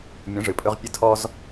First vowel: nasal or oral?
nasal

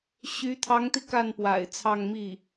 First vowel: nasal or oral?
oral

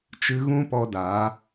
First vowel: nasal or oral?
oral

